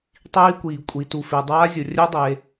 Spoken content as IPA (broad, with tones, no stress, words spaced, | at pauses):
tˤiː˦˥kʷiː˩ kʷʼi˩tu˩fe˩ dˤaː˦˥zʲo˩ rʲœ˦˥dˤe˩